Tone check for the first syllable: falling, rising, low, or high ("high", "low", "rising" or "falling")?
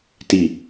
falling